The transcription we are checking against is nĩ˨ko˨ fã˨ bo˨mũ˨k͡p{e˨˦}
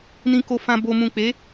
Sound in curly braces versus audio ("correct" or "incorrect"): correct